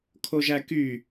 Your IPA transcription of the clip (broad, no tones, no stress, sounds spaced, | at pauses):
kʰ o ʒ æ k y